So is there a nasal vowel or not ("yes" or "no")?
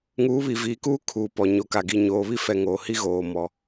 no